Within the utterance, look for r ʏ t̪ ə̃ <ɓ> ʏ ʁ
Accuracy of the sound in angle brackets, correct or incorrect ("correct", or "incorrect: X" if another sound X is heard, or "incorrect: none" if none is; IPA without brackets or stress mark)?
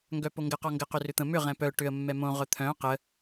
incorrect: m